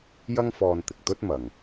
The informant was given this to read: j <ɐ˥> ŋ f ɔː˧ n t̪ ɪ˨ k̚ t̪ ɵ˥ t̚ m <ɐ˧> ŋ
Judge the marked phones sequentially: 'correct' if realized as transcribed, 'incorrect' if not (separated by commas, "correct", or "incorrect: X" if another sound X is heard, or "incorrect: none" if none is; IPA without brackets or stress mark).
correct, incorrect: ɐ˨